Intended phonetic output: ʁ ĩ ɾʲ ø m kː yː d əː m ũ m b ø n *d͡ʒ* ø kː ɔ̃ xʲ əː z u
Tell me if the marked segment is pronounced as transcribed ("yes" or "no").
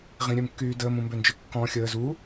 yes